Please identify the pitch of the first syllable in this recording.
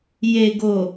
low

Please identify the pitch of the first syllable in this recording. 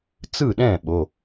falling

